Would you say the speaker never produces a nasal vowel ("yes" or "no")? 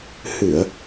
yes